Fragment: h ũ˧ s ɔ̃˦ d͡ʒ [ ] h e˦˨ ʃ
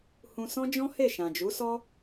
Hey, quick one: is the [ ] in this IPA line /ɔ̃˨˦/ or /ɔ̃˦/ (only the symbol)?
ɔ̃˦